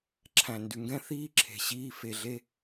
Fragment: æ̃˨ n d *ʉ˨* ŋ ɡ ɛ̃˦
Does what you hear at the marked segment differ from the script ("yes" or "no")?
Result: no